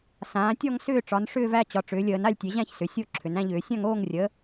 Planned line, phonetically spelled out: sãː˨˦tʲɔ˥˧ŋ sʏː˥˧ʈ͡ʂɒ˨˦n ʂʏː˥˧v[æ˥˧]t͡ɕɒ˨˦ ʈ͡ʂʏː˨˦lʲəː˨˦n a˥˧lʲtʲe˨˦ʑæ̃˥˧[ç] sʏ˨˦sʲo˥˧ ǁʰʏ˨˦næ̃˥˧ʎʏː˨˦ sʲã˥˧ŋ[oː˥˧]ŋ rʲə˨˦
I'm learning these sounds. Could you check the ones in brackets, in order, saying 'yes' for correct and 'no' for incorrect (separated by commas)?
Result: yes, yes, yes